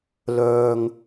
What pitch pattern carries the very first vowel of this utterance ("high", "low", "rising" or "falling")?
low